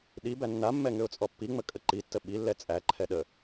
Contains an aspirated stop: yes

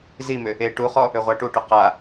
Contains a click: no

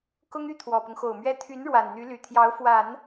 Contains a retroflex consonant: yes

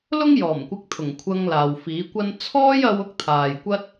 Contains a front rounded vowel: no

